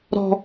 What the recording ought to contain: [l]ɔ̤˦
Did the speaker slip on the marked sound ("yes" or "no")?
yes